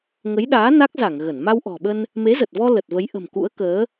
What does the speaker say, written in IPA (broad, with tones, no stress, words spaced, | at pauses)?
ŋə˨˦jɗaː˨˦ na˦˥k̚za˧˩ŋ ɣə˧˩n ma˧wʔɔ̤˨˩ɓə˧n | me˨˦zə˨˩t̚vɔ˧ lə˨˩t̚və˨˦jʔə̤˨˩m kṵ˧˥ə̯kəː˨˦